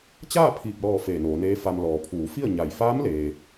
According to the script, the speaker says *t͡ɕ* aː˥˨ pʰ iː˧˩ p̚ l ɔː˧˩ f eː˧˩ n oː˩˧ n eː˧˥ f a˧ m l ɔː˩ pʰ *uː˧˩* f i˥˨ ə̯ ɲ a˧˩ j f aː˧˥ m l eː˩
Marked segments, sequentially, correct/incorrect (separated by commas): correct, incorrect